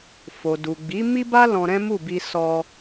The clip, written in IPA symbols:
f o˨ d u˨ ɡ͡b i˨˦ m i˦ b a˦ l ɔ̃˧ ɾ ɛ̃˦ m u˦˨ b i˧ s ɔ˧

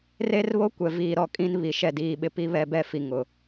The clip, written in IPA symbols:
r e˦ r β o˦ kʷ ɛ˨ v iː˨ ɾ ɔ˨ kʼ ĩ˦ n β i˨ ʃ ɛ˦˨ d iː˦ ɓ ɪ˦ p i˦ β ɛ˦ b ɛ˦ f i˨ ŋ ʊ˨

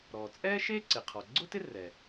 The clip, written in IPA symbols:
ɾ ɔː˩ t͡sʼ ɛː˥ ʃ eː˥ ǀ ɪ˩ qʰ ɔ˩ ɡ͡ǀ ʊ˥ t ɪ˥ r ɛ˩

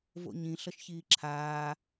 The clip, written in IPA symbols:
v o̰ ɲ ĩ ɬ ʌ ʃ ç iː ǁʰ aː

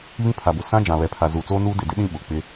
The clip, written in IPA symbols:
β ĩ˦ pʰ a˨ b ʊ˨ s ã˦ d͡ʒ ã˨ β ɛ˨ pʰ a˨ z uː˨ t͡s oː˦ n uː˦ d ɪ˨ d ɪ˦ ɗ ĩ˦ ɓ ʊ˨ k͡p ɪ˦

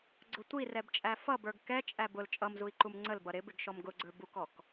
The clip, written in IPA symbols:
ɡ͡ǀ ʊ tʷ i r ɛ b t͡ʃʼ æ f ʌ b ə˞ ɡ k ɛ t͡ʃʼ æ b ʊ l t͡ʃʼ ʌ m z u i̯ ǃ u m ŋ͡ǀ ə l b ʌ ɾ ɪ b ɪ ɡ ʃ ɔ m ɡ ʊ ɡ͡ǀ ə˞ b u k ɔ k

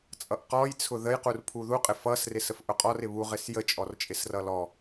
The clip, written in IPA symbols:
t͡sʼ ʌ ʔ q ɔ j t͡sʰ ʊ ð ə j q u r pʰ u ð u qʼ ɪ f ʌ s r ɪ s ə f ʔ ʊ qʼ ɔ r ɪ β u ʁ ɪ s j ə t͡ʃʼ ɔ r t͡ʃʼ ɪ s r ʌ l ɔ

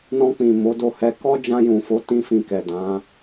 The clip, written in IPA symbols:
n ɔ̃˧ k͡p ĩ˨ m o˨˦ d o˧ h ɛ˧ k ɔ˦ d͡ʒ ã˧ j ũ˨ f o˨˦ t ĩ˦ f ĩ˧ k ɛ˨ d ã˨˦

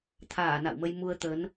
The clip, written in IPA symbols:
t̪ʰ aː˧˩ n a̰˧˨ w m ə˧ j m u˧ ə̯ t̪ ə˨˦ n

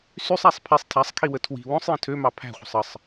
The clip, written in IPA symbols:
s y sˤ æ sˤ pʰ i sˤ tʰ æ sˤ kʰ i w ə tʰ w i̤ w õ sˤ j ə̃ tʰ ø m ɑ pʰ æ̤ χʷ ə̤ sˤ ə sˤ

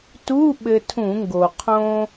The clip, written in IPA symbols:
t u˧˥˧ ɓ ɘ˧ tʰ ũ˧˩˧ ŋ ɡ o˩ qʰ õ˧

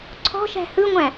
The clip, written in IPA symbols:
ǀʰ ɔ̤ ʃ æ̤ h ɯ ŋʷ æ̃

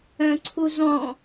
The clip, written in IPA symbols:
œ̃ ǀʰ u z ɔ̃

